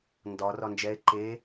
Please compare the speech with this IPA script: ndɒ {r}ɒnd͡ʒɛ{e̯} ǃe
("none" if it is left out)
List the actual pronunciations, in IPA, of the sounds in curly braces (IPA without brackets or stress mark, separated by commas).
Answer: r, e̯